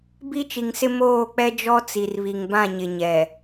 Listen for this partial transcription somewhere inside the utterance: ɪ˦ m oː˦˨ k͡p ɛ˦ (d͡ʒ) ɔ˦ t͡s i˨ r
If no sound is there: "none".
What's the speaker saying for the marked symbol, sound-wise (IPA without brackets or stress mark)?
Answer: d͡ʒ